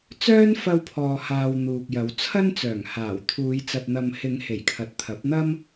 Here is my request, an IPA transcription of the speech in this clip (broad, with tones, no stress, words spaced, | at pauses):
t͡sœː˥nfɐ˧wpʰɔː˨haː˨w n̪uː˨k̚jɐ˨˧w t͡sʰɐ˥nt͡sœː˨˩ŋhaː˨˩wt̪ʰuː˨˧j t͡sɐ˨t̚n̪ɐ˨m hɪ˨˧ŋ he˨˩jkʰɐ˨t̚t̪ʰɐ˨˥p̚ n̪ɐ˥m